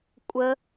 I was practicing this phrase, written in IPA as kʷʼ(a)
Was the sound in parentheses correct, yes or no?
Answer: no